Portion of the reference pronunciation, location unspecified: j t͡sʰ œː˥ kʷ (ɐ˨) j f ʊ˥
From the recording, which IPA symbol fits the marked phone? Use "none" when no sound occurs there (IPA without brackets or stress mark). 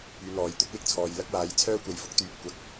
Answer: ɐ˨